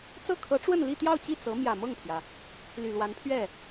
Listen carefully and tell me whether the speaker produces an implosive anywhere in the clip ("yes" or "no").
no